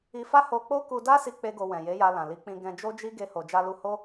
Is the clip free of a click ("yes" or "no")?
yes